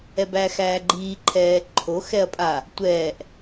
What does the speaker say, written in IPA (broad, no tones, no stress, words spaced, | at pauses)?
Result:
ɛbæxæːɡ͡ǃiː ǃʰɛːǃʰo xɛɐ̯pʼa | tʷɛːʔ